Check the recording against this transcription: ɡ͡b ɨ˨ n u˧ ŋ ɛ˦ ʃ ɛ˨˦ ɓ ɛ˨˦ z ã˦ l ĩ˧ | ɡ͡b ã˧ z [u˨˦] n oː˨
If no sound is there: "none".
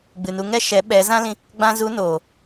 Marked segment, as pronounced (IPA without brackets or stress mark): u˨˦